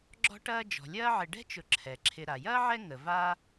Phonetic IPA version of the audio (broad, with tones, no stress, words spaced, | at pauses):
ɡ͡ǁɔ̤˦ʈɐː˦ d͡ʒɔ̤˩lʲɐː˦ʕɪ˨ ɖɛ̤˥t͡ʃʊ˨ ǁʰɛ˩ ǁʰɪ˨ ɾa˩jɐː˥ʕɛ˦ ŋə˨va˥